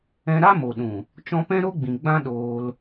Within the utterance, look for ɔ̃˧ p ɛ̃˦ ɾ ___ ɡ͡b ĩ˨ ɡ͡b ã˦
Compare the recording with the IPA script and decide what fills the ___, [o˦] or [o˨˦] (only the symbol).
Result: o˦